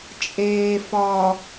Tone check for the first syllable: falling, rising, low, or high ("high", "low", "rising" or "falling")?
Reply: low